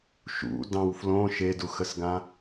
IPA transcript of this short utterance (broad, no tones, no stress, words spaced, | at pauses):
ʃṵ dɑ̃w flõ ʃeduxəsɡã